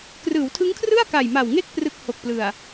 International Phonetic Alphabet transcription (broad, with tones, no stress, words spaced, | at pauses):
krɯː˩˦wtʰɯ˦˥ŋkʰrɯ˥˩a̯ ka˨˩jma˨˩wŋe˥˩k̚ prɯ˦˥k̚ho˨˩k̚plɯ˨˩a̯